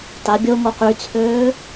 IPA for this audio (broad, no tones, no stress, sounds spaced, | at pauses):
t a bʲ o ŋ o q y t͡sʰ øː